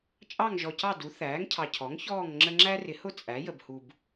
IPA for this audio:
t͡ʃʼ ɑ˦˨ ŋ ʒ ɔ˨ c ɑ˦˨ d u˩˥ θ æː˩˥ ŋ cʰ ɑ˨ cʰ ɔ˩˥ ŋ ç ɔː˦˨ ŋ ŋ͡ǁ ə˦ ŋ͡ǁ æ˦ r ɪ˩˥ h ʊ˦ t͡sʼ æ˩˥ j ə˨ b h u˨ b

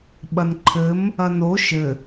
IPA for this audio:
ɓ ɐ n ǃʰ ɘ m | ɐ n o ʃ ɘ

